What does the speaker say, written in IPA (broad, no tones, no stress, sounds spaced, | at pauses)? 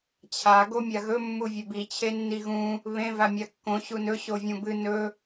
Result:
t͡ɕʰ a ɡ o mʲ a ɣ ɵ mː u vʲ e b i t͡ɕʰ e nː i ɣ ũ | β ẽ v a mʲ a kː õ ɕ u n ɵ ɕ o vʲ ũ b ɨ n ɵ